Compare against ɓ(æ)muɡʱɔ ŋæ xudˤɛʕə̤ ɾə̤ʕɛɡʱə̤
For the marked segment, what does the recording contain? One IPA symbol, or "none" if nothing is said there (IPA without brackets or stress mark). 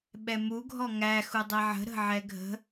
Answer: ɛ